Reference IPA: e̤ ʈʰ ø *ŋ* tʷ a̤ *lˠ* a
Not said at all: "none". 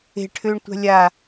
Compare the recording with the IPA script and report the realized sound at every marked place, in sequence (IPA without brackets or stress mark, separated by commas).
ɳ, lʲ